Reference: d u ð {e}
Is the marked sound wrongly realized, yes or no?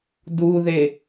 no